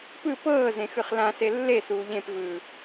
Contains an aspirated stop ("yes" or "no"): no